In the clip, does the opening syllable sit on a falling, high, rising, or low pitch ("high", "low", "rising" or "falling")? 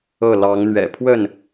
falling